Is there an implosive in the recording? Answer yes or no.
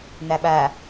yes